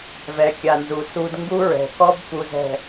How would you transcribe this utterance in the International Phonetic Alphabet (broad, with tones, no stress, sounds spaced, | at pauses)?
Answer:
v ɛ˨ kʲ a˨ n z u˨ s u˦ d ŋ ɡ u˦ ɹ ɛ̤˨ k ɔ˦ b k u˦ z ɛ̤˦˨